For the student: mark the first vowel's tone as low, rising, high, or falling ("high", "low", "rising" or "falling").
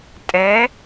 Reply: rising